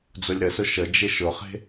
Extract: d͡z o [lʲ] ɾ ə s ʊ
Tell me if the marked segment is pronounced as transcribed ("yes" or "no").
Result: yes